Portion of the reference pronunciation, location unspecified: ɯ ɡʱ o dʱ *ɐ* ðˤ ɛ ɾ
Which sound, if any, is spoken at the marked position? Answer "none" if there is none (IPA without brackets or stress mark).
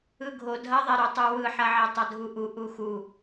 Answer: ɐ